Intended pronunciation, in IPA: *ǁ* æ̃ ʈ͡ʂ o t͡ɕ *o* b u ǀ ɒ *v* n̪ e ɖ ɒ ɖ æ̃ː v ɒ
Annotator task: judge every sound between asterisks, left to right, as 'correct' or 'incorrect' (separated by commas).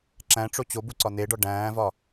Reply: correct, correct, incorrect